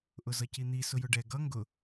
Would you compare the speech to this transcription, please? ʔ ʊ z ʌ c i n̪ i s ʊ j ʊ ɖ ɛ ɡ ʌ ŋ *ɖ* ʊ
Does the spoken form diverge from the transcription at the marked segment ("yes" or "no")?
yes